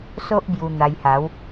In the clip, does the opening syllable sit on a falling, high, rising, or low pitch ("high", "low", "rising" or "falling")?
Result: high